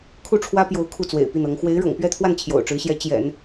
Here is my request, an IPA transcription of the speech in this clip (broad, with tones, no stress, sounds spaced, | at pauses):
kʰ u˥˩ ʈ͡ʂʰ w ä˥ p j o˧˥ ʊ̯ kʰ u˥˩ t͡s w ḛ˨˩ ɪ̯ p i˥˩ n ɤ˧˥ ŋ x w e˧˥ ɪ̯ ɻ ɤ̰˨˩ ŋ p ɥ ɛ˥˧ t̪ʰ w a˥˩ n t͡ɕʰ j o̰˨˩ ʊ̯ ʈ͡ʂ ɻ̩˧˥ ɕ j ɛ˧˥ t͡ɕ j ɛ̰˨˩˦ n